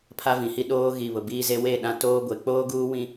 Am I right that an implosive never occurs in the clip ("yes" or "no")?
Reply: no